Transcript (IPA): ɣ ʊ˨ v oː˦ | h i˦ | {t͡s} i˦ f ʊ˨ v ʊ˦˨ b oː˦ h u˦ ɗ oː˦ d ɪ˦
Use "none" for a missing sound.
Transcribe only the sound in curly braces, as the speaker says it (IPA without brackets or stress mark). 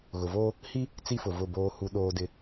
t͡s